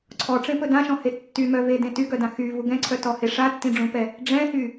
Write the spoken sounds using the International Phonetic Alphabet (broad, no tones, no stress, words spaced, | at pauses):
ǀʰɔʈ͡ʂẽpɵ dãʃɔ̃he tːymœvedẽ tyɡœdã xyvu ɡɛ̃ǀʰœtɔhe ʂatːĩɖ͡ʐũpɛ | ɖ͡ʐɛ̃hy